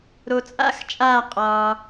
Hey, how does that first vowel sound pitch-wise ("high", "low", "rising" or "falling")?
low